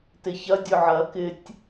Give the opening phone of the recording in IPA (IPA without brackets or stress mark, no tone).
t